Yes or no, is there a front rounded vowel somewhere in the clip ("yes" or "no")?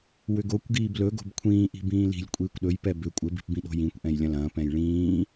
yes